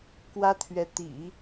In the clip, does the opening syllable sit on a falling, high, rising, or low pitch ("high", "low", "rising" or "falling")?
high